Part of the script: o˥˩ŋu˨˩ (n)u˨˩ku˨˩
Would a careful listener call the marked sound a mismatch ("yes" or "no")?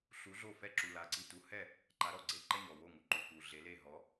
yes